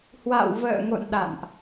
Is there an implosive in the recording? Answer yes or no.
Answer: yes